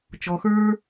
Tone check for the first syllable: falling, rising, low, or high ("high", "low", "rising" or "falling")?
low